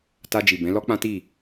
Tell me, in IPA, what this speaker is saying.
t a˧ d͡ʒ i˨ b ɛ̃˨˦ l ɔ˦ k͡p ã˦ t i˦˨

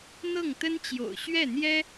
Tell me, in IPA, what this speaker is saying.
n̪ ɤ˥˩ ŋ t̪ ə˥ n t͡ɕ j o̰˨˩ ʊ̯ ɕ ɥ ɛ˥˩ n̪ j ɛ˥

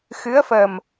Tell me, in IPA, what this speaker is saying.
x ɨ˧˥ ə̯ f ə˨˩ m

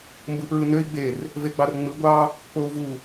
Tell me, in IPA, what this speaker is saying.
m b ɯ p ɹ ɯ n ø i̯ ɡ͡b e r | v e ɡ͡b ɑ r ŋ͡m ɯ ɡʷ ɑ | k͡p o u̯ v u

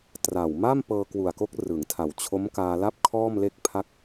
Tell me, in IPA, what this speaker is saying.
t r a˨˩ w m a˥˩ m p ɤː˧ k w u˨˩ a̯ k o˦˥ k̚ r ɯ˩˦ ŋ tʰ a˨˩ w t͡ɕʰ o˦˥ m k aː˧ l a˥˩ p̚ kʰ ɔː˥˩ m l e˥˩ k̚ pʰ a˥˩ k̚

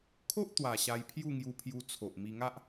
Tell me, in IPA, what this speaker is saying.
kʰ o˦ ʔ t̪ w a˨˩ ɕ a˧ j pʰ j u˥˧ ŋ j u˧ pʰ j u˧ t͡sʰ o˨ ʔ m i˧ ŋ a˦ ʔ

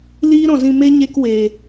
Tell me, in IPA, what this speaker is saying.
l iː˦ ɾ ɔ̃˨ z ĩ˧ m e˦ ɲ e˦ k w e˨

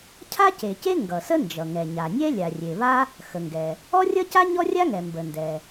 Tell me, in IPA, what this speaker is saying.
cʰ a˥ c e˩ c e˥ ŋ ɡ ʌ˩ s ə˥ n d͡ʒ ʌ˩ ŋ ɛ˩ ɲ a˩ nʲ ɛ˥ lʲ a˩ rʲ e˩ β a˥ | x ə˩ ŋ ɡ ɛ˩ | ɔ˥ rʲ ʌ˥ c a˥ ɲ ɔ˥ rʲ a˥ ŋ ɛ˩ m b ə˩ n d ɛ˩

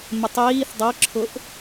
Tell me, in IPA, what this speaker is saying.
m ɪ tˤ iː θ dˤ ɤ ǁʰ ʊ ʔ

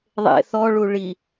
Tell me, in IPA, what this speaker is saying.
ðˤ ḛ θ ɔ ɭ u ɭ i

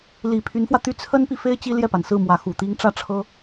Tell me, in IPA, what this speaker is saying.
l i˨˩ pʰ y˧˥ n f w ä˧ t̪ y˥ t͡sʰ ə˥ n p i˨ f e˥ ɪ̯ t͡ɕ i˥ l j ɛ˥˩ p a˩ n s ɹ̩˥˩ m w ä˧˥ x u˨˩ t̪ i˥ ŋ ʈ͡ʂ ä˥˩ ʈ͡ʂʰ ɤ˥

